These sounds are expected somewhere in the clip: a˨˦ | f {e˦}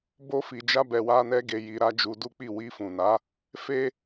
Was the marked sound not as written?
no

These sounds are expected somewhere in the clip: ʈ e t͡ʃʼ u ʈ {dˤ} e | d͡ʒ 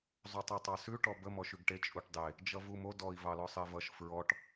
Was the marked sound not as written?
no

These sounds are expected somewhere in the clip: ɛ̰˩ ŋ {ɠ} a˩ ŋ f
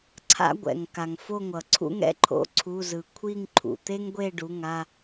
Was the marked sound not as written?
yes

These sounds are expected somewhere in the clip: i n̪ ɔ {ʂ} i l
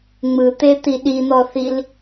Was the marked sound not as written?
yes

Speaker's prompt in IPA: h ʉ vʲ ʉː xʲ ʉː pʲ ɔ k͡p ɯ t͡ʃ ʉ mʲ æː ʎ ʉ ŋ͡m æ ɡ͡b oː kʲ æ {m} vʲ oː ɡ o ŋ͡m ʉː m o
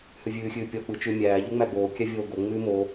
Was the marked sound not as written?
yes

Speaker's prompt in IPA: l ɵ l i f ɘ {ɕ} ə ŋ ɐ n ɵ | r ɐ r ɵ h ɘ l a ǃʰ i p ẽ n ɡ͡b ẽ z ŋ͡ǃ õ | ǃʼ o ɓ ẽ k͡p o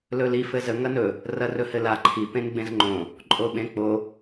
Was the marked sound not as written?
yes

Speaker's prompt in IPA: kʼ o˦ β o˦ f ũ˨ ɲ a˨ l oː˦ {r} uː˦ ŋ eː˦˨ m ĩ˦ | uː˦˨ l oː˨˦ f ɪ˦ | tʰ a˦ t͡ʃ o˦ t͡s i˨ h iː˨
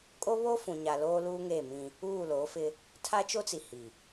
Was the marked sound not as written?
yes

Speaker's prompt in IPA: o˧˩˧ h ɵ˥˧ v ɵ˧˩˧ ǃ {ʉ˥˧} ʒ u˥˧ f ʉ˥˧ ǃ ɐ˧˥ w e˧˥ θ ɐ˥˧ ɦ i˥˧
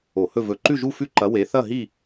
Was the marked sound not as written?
no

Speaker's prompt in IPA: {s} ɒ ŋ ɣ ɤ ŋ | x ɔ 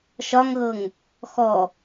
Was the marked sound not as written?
yes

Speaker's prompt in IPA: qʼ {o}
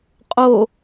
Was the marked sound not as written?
no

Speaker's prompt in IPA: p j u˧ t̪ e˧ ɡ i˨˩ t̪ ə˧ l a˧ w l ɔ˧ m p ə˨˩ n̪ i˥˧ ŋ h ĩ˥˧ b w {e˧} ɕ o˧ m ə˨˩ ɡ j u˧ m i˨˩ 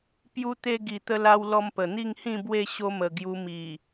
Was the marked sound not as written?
yes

